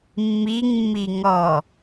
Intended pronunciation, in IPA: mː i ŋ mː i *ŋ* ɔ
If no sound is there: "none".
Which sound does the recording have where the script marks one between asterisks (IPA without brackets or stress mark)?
ŋ